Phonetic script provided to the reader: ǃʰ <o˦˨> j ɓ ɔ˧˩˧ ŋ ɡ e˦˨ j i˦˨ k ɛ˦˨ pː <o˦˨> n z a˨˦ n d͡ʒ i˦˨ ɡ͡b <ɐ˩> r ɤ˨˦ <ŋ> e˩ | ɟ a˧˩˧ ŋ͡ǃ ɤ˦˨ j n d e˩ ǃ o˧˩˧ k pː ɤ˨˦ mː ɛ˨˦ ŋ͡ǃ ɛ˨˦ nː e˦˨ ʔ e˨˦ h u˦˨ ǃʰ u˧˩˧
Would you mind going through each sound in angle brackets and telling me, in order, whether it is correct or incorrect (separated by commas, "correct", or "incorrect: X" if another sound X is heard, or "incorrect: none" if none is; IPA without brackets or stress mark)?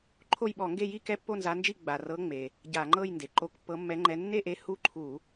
correct, correct, incorrect: a˩, incorrect: ŋ͡m